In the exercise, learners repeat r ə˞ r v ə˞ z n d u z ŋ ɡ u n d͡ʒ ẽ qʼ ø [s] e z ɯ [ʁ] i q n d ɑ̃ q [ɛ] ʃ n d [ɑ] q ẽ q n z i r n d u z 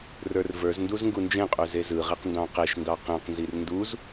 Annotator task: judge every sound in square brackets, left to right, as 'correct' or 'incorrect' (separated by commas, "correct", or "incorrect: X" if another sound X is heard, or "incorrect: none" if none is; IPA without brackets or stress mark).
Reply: incorrect: z, correct, incorrect: e, correct